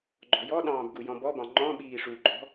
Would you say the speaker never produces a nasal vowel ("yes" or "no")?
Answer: no